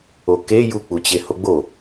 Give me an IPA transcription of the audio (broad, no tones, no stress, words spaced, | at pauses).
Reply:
oke juk͡pu t͡ɕehoɡ͡bo